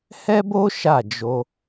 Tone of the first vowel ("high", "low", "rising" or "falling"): high